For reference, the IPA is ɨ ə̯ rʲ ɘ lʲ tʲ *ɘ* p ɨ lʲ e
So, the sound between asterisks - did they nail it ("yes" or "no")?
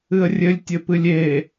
yes